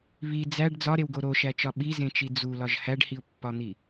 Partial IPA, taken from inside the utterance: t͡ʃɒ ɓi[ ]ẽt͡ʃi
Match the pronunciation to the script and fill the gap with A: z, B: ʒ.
A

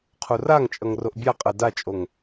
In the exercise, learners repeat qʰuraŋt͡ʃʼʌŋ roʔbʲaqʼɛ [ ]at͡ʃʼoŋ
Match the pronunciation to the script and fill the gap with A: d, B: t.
A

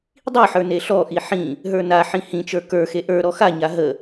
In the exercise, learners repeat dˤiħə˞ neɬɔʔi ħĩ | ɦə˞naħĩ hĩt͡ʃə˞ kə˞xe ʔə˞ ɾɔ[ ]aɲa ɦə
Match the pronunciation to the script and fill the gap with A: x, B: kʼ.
A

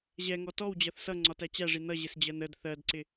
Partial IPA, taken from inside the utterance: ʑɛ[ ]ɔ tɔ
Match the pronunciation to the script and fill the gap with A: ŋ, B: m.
A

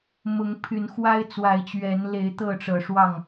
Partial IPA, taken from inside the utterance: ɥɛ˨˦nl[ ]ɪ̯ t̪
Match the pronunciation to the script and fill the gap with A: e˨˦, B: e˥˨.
A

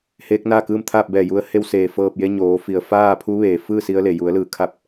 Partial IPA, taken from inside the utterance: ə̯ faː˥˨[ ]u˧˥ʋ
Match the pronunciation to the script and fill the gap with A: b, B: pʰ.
B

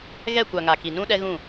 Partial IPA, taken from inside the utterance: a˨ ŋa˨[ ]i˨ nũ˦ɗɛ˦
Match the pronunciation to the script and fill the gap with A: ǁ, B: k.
B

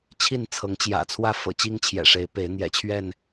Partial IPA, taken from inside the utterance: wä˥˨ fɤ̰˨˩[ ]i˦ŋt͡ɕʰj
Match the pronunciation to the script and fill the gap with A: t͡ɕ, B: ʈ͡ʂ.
A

